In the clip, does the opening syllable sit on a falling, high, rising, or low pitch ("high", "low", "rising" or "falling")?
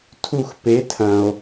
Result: falling